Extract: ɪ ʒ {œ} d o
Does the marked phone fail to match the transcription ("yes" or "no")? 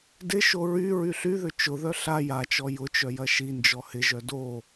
no